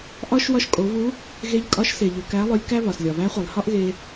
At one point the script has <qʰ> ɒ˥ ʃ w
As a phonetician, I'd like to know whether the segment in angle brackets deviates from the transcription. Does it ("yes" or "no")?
yes